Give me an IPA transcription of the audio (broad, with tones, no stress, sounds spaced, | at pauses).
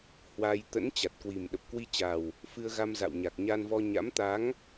h w a˧ j t̪ ə̰˧˥ n t͡ɕ a˨˩ t̚ k w i˨˩ m ɗ ə˨˩ p̚ k w i˧ t͡ɕ a˨˩ w | f ɨ˧ ə̯ ɣ a˧ m z a̰˧˨ w ɲ a˨˩ k̚ ɲ aː˧ n v ɔ˧ ɲ a̰˧˥ m t̪ a˨˦ ŋ